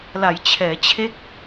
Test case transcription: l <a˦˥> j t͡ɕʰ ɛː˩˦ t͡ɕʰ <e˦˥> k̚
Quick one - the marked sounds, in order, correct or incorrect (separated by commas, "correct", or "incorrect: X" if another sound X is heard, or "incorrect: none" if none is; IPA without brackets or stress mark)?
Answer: incorrect: a˩˦, correct